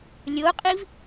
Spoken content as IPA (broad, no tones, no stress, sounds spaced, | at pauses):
lʲ o qʼ i v